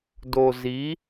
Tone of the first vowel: low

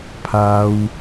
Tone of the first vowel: high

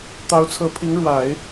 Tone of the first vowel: rising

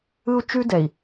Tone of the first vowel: high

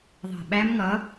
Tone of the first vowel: low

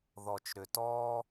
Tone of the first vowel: low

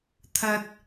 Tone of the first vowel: high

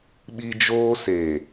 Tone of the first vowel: high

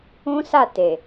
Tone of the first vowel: high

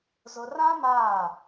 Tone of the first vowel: low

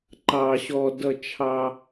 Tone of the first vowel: high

